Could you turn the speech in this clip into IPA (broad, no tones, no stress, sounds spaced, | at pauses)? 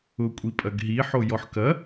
ʊ kʷʼ i pʼ ɐ ɡ ɦ i ħ o j ɔ ħ k ɐ